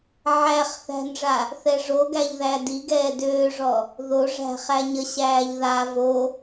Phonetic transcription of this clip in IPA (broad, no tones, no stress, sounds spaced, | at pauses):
ʕ æ χ θ æ̤ n ʐ a | θ ɛ ʐ o ɡ æ ʎ ð æ d i ɡ ɛː d øː ʐ ɔ | ð o ʐ æ̤ χ æ ɲ ə ɕ æː ʎ ð a v o